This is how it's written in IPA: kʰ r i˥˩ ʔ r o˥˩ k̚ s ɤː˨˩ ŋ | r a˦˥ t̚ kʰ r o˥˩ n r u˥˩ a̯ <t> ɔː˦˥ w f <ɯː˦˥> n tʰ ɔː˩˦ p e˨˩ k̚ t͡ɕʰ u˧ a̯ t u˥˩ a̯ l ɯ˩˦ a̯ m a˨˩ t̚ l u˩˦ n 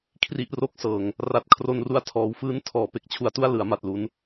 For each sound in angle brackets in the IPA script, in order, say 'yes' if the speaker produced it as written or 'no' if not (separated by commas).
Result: no, no